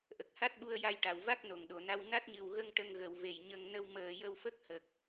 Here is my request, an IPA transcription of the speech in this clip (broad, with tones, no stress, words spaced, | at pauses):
ʔə˨˩k̚ha˦˥t̚ɓu˧ə̯ ja˧jʈa˨˩˨w va˦˥k̚no˨˩˨ŋɗo˨˩˨na˧w na˦˥t̚ɲɨ˨˩wɣə˧ŋ ʈə˧ŋ ɣə˨˩˨wve˨˩˨j ɲə˧ŋ nə˧wməː˨˩jə˧wfə˦˥k̚ hə˨˩k̚